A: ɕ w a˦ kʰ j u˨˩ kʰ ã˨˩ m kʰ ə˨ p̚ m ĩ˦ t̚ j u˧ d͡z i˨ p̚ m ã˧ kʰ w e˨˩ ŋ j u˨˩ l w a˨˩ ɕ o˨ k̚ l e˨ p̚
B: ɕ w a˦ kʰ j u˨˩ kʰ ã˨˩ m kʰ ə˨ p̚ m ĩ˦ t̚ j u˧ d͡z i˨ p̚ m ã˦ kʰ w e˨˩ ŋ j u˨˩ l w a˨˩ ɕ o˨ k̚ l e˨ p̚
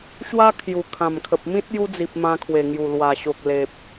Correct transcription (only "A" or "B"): A